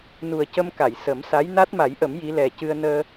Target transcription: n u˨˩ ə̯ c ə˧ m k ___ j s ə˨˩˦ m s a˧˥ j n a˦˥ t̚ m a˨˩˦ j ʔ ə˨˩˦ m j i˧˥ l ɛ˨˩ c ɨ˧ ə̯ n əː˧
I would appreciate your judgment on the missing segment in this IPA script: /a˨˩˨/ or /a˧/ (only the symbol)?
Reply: a˨˩˨